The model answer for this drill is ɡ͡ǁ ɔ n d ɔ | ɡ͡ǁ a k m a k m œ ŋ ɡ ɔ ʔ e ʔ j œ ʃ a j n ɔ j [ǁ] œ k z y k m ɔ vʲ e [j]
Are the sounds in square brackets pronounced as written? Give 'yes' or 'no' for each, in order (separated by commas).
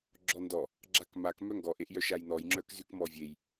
no, yes